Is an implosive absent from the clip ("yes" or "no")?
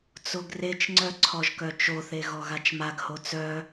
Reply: yes